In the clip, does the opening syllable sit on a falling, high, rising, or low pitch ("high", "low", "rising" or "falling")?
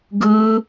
high